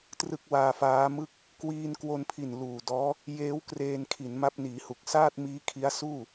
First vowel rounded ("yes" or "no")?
no